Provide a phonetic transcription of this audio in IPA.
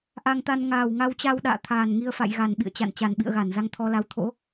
ʔa˧ŋt̪a˧n ŋaː˨˩wŋa˧wt͡ɕa˧wɗa̰ː˧˨ t̪ʰaː˨˩nŋi˧ə̯fa̰˧˨jɣa˨˩n ɓḭ˧˨ə̯t͡ɕa̰˧˨n t͡ɕa˨˩nɓḭ˧˨ə̯ɣa˧˩n za˧ŋt̪ʰɔ˧la˨˦w t̪ʰo̰˧˥

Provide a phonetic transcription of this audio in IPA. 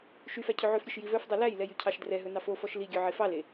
ʃyfæ cʰɵʕøfɾʲøʃ jivœfdˤœ læjlɛj ycʰɑʃdrɛɦɵ nɑfofɔʃ liɡʲœ ʕefɑle

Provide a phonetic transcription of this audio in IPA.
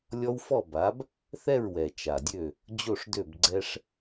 lʲɔ˦wfɔ˥˨ba˨˥b | θɛ˥˨ɹwɛ˨˩ t͡ʃa˨˩dʲø˥˨ | d͡ʑo˥˨ʂdø˥˨b ɡ͡ǀɛ˦ʂ

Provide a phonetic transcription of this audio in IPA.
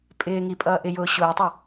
pʼɪː ŋipʼʌːʔɪjʊː ɕʊːtˤɛ

